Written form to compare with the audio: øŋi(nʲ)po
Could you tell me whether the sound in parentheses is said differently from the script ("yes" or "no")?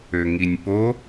no